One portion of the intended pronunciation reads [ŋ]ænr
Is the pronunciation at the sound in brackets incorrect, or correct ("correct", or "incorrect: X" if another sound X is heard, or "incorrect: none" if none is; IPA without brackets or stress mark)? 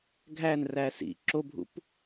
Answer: incorrect: ɡʱ